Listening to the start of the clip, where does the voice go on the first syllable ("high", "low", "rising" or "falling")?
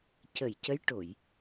low